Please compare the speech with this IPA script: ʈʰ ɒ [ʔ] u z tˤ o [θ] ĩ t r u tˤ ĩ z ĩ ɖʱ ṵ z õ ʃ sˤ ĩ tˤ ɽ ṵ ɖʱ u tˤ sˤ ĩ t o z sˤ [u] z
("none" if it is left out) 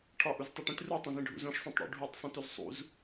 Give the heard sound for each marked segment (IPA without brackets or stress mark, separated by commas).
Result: ʔ, ʈ, ṵ